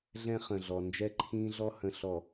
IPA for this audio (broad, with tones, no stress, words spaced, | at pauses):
ɮɛ̃˦χə̃˨ɮɔ˨ nd͡ʒɛ˦ǃʰĩː˦ɮɔ˦ hə̃˨ɬɔ˨